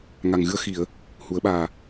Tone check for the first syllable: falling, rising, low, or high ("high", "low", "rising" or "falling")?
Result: low